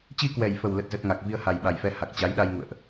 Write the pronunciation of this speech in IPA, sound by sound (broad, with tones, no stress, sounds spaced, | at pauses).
t͡ɕ i˧ k w ɛ˨˩ j f ə˨˩ w l ə˦˥ t̚ z ə˦˥ t̚ ŋ a˨˩ k̚ v i˧ ə̯ h a˨˩ j ɓ a˨˩ j f ɛ˧ h a˨˩ k̚ t͡ɕ a˨˦ j ɗ a˧ j ŋ ṵ˧˨ ə̯ ʔ